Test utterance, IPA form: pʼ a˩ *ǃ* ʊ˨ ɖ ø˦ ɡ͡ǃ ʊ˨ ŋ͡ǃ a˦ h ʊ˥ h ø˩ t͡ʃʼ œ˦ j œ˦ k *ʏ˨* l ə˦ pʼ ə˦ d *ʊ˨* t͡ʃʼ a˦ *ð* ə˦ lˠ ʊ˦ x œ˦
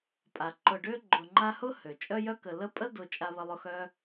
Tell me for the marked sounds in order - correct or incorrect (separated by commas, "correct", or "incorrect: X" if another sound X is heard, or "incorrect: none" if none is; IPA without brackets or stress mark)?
correct, incorrect: ə˨, correct, incorrect: β